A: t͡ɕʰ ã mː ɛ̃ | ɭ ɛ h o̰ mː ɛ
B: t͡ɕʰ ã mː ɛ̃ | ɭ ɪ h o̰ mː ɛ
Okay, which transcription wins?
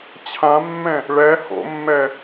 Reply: A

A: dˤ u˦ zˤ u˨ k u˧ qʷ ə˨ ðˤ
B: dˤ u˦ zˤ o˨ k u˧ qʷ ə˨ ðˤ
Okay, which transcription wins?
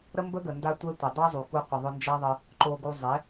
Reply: A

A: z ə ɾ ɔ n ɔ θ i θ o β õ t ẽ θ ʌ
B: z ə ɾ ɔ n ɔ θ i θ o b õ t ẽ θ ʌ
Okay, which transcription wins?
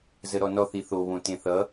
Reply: A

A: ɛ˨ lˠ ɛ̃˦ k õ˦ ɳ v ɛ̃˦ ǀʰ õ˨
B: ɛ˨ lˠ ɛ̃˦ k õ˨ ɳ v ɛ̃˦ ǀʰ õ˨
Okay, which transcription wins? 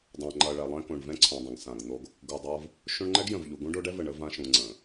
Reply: B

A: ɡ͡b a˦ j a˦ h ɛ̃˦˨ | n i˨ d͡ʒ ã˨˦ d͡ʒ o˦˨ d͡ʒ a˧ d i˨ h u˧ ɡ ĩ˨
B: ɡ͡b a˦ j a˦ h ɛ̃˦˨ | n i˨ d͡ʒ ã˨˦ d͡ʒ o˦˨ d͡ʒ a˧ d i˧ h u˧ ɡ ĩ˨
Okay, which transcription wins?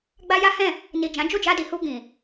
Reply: A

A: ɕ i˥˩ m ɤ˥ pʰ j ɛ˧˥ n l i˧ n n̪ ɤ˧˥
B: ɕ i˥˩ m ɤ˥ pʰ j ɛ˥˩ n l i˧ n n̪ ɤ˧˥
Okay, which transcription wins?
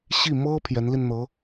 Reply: A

